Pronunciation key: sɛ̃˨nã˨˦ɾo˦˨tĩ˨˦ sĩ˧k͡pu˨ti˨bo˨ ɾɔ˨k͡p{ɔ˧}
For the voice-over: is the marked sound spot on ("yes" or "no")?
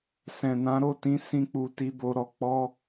yes